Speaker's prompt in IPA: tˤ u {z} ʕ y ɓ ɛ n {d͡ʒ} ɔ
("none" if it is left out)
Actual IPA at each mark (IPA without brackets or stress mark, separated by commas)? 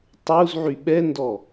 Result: z, d